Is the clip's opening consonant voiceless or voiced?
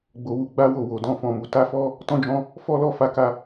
voiced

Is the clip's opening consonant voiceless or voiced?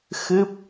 voiceless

